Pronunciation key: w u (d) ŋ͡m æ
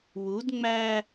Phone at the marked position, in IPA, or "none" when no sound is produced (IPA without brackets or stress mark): d